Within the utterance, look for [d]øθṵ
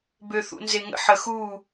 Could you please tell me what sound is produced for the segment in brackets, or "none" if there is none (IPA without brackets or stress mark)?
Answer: b